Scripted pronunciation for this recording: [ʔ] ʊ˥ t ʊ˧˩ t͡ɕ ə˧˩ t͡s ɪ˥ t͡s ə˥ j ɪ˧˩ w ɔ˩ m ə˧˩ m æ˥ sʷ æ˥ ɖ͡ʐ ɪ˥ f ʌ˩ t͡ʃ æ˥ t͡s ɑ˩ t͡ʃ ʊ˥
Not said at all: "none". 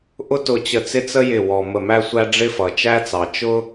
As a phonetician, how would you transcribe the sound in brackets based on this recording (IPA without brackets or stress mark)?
ʔ